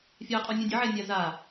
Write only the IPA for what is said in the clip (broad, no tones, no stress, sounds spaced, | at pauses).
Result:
fʲ a qʼ ɔ nʲ ũ dʲ ə ʕ ɛ nʲ a z a